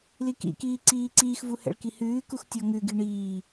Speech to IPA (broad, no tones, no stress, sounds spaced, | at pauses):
l i k ḭ k iː ǀ iː ǀ iː x v u h ɛ̰ ɭ k i h ʉː k u x tʲ ɔ ŋ ʉ ɡ i ɳ iː